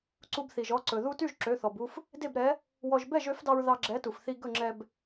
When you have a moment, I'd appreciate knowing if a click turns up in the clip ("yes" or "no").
yes